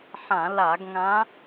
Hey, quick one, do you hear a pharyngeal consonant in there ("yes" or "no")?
yes